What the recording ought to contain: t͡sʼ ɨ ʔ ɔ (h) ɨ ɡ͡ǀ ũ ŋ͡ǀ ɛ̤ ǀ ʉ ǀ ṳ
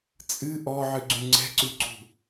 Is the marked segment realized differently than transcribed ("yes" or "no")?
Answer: yes